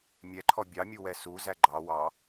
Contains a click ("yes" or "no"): yes